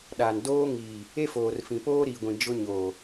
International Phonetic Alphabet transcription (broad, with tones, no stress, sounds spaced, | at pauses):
ɗ a˨ n d oː˦ ŋ iː˨ | e˦ f oː˨ r f ĩ˨ p oː˦ ɾ i˨ ɡʷ ĩ˨ d͡ʒ ʊ˦ ɲ oː˨